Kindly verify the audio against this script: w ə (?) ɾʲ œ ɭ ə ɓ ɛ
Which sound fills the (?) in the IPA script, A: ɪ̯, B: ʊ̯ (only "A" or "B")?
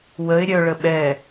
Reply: A